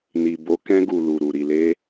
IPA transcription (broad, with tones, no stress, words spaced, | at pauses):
ni˨ bo˨˦kɛ̃˧ɡu˨ lu˨ɾu˨ ɾi˨le˧